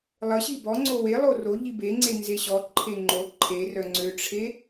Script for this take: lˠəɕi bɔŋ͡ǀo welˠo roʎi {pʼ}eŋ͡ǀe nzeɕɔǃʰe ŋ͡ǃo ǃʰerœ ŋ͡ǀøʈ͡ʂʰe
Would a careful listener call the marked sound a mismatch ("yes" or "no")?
yes